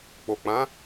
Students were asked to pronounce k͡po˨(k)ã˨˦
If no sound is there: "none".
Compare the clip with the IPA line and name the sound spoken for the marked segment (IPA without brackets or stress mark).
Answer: k͡p